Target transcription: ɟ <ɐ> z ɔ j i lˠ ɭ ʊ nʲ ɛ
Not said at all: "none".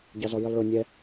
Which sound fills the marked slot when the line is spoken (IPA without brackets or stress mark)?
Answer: ɑ